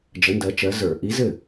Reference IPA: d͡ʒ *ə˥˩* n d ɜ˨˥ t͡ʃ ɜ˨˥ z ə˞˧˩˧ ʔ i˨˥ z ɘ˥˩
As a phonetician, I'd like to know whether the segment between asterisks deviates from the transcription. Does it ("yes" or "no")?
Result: yes